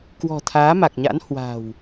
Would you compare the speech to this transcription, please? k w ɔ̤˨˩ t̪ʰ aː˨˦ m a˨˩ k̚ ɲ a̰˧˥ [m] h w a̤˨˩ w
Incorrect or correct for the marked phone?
incorrect: n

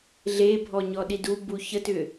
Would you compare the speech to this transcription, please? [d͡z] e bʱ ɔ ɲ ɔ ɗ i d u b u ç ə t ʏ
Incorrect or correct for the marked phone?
incorrect: ɮ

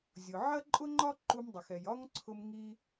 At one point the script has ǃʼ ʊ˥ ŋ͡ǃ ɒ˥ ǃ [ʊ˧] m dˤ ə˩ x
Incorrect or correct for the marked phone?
incorrect: u˧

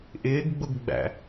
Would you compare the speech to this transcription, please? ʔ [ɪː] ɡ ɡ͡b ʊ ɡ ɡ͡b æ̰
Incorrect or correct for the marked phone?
correct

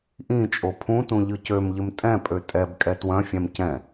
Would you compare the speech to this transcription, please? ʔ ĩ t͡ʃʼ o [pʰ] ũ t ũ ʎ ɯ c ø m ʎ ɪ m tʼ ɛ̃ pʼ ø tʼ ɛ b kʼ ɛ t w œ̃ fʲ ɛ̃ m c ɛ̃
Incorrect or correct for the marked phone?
correct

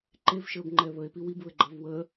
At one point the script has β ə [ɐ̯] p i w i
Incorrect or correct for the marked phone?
incorrect: e̯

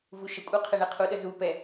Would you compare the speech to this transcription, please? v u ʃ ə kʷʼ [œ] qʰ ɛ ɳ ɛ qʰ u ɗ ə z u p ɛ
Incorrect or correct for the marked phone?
correct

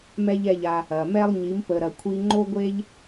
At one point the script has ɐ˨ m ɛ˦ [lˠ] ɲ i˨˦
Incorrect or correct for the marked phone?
correct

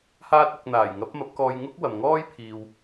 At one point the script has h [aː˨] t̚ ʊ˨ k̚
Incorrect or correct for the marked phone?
incorrect: aː˧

